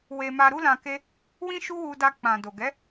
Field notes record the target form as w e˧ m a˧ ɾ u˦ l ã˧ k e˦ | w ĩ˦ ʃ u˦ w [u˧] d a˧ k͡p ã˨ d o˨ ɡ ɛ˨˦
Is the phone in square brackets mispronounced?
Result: no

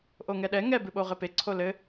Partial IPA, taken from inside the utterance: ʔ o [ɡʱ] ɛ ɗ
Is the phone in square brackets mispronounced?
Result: yes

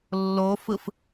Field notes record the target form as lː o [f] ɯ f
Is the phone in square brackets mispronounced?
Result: no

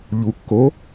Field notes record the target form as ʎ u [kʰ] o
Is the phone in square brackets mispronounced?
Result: yes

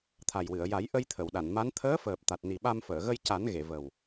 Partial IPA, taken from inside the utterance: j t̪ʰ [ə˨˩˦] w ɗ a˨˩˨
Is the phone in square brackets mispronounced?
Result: yes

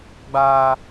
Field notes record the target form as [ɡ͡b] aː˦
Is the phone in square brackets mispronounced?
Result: no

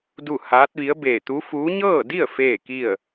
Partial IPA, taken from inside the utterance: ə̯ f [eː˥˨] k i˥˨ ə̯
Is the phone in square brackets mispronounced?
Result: no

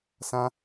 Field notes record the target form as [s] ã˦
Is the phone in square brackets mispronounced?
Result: no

